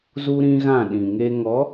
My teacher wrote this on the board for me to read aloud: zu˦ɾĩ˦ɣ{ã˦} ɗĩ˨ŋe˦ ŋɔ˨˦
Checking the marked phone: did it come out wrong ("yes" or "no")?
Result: yes